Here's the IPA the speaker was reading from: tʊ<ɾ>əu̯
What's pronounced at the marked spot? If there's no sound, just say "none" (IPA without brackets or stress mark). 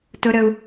ɾ